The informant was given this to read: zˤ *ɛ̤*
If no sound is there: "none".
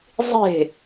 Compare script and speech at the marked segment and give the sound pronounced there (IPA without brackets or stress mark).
e̤